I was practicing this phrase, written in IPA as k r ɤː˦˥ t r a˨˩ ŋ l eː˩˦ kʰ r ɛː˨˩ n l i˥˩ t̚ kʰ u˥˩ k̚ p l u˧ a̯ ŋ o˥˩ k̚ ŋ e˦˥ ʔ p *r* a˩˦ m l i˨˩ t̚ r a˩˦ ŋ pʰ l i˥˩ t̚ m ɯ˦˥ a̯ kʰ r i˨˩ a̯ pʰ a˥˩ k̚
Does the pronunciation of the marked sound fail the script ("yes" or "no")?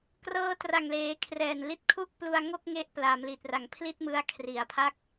yes